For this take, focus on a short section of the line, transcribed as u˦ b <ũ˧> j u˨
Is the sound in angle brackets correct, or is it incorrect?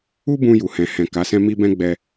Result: correct